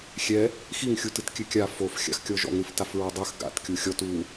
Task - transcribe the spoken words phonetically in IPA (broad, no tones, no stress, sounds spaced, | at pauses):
xʲ ɛ | x i ŋ xʲ u t ɨ t kʲ ɨ kʲ a f o f xʲ a̰ x kʲ ɔ ʒ ɔ̰ ŋ ɾ ɨ f t a f ɹ ɔ dˤ ɨ x ɡ a̰ t kʲ u xʲ ɔ t u